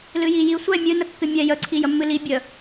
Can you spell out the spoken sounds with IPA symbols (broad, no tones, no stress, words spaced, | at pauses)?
lɨjiji sʷɛ mʲɨ nəkːɨmʲɛ jə ǀʰijəmːɨli bʲə